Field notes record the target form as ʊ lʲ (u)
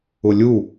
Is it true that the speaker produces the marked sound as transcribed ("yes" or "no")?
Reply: yes